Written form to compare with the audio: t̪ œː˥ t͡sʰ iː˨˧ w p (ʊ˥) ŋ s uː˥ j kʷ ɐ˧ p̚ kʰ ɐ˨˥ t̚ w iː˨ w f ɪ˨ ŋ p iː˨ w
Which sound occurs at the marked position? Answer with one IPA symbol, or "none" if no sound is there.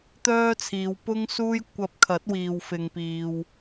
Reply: ʊ˥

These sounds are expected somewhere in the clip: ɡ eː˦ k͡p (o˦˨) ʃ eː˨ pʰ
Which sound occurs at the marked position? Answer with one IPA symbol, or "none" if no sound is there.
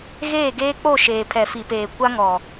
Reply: o˦˨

